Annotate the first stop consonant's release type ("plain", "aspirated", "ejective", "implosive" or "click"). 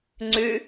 click